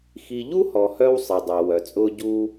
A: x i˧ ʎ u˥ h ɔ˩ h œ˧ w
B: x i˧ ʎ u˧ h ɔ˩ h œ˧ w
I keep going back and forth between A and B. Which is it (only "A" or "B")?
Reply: A